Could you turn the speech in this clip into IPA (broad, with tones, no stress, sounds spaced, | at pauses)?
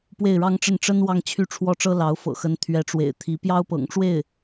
p w e˥˩ ɪ̯ ɻ ɑ˥ ŋ ʈ͡ʂ ə˥˩ n ʈ͡ʂ ə˥ n w ɑ˥˧ ŋ t͡ɕʰ y˥˩ ʈ͡ʂʰ w ɔ˥ ʈ͡ʂ ɤ˥ l ɑ˧˥ ʊ̯ f ɤ̰˨˩ x ə˧˥ n t̪ʰ ɥ ɛ˧˥ ʈ͡ʂ w ḛ˨˩ ɪ̯ t̪ʰ i˧˥ p j ɑ˥ ʊ̯ p ɤ̰˨˩ ŋ ʈ͡ʂ w e˥˩ ɪ̯